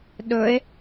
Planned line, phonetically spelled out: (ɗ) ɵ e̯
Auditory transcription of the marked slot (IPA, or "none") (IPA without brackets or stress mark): ɗ